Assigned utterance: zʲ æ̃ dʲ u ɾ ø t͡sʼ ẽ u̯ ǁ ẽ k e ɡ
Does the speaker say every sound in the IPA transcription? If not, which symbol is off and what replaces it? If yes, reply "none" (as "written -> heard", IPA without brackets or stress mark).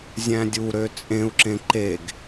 k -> ǃ